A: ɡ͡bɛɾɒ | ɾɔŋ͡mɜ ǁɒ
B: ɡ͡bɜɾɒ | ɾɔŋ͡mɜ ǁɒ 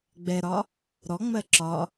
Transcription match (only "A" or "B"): A